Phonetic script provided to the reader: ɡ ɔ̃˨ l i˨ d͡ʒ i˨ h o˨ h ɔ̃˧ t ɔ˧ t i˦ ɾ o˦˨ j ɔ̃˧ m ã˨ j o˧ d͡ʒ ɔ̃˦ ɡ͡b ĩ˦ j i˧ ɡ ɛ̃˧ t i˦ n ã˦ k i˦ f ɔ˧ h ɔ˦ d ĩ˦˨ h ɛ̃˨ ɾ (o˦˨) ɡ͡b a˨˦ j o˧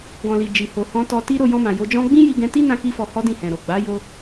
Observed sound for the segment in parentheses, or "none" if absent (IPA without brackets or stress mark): o˨